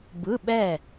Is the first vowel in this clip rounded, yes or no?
no